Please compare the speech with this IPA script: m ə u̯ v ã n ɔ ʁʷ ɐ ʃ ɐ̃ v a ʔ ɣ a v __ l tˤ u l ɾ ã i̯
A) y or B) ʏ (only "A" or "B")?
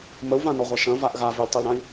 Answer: B